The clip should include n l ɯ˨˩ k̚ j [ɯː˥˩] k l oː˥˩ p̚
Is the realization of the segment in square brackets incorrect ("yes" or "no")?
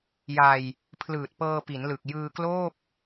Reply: yes